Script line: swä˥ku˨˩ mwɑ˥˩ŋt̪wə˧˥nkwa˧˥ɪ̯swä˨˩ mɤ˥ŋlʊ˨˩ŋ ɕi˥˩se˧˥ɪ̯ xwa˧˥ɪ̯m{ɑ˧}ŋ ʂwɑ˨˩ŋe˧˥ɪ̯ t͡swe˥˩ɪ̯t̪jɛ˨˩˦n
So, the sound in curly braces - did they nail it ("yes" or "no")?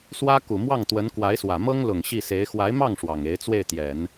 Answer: no